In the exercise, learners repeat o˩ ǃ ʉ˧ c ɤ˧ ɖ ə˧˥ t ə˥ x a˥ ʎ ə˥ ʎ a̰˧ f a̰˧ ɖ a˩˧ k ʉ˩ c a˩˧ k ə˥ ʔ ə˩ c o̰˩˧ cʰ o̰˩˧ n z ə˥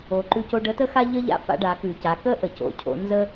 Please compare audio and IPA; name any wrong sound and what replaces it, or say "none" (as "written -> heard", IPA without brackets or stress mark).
ɤ˧ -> o˧